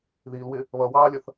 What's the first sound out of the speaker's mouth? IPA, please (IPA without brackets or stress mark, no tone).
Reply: ð